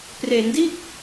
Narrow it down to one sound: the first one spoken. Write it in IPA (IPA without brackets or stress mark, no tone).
p